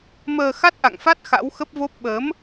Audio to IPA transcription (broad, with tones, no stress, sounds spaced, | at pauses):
m əː˧ x a˦˥ t̚ ʔ a̰˧˨ ŋ f a˦˥ t̚ x a̰˧˥ w x ə˦˥ p̚ v o˦˥ p̚ ɓ əː˨˦ m